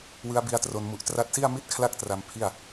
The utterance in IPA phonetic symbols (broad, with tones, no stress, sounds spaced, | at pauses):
w ɯ˦˥ a̯ b i˦˥ a̯ t r o˧ n m u˨˩ ʔ t r a˦˥ t̚ s i˥˩ a̯ m i˥˩ t̚ kʰ l a˥˩ k̚ t r a˧ m pʰ i˥˩ a̯